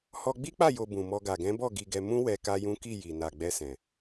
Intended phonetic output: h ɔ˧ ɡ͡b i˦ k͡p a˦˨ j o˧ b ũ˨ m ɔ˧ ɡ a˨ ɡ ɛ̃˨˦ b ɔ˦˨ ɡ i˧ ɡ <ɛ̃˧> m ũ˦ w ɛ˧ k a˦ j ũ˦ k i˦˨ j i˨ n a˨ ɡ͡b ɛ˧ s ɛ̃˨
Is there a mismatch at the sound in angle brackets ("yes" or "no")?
yes